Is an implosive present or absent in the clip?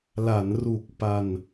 absent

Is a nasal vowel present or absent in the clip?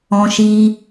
present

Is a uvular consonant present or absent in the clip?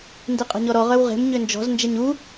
present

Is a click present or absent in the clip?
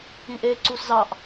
present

